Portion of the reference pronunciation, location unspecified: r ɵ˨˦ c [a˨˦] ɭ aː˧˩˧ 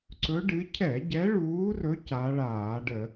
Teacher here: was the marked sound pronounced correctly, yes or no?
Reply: yes